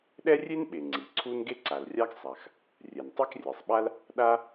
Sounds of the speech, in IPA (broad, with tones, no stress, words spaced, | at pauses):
ɗɛ˥rʲe˥nɓe˩ ŋ͡ǀi˩ǀʰu˥n ɡe˥ǀa˩lrʲa˥ɡ sˤa˩x | rʲɛ˩ntˤe˥krʲɛ˩sˤɓa˥l | ɗa˥